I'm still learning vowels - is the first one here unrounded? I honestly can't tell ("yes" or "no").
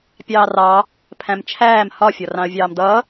yes